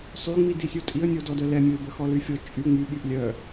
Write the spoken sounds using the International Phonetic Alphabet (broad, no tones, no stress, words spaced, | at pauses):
sˤyŋ͡mi disʲotʼiə̯nʲo dɔdœlɛmʲoɪ̯ bəxɔlyfʲɔ t͡ʃʼy ŋ͡my ɓyʔlʲœ